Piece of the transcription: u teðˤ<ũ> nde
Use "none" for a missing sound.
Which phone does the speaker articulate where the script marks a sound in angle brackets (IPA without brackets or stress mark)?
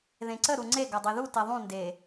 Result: ũ